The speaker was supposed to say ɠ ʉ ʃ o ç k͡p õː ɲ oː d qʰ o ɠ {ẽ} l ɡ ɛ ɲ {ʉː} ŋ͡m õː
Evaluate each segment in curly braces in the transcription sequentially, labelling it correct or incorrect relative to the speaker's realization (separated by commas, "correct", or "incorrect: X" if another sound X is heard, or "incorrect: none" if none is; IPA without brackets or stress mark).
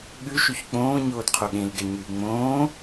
correct, correct